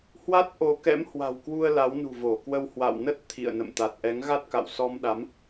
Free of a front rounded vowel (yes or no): yes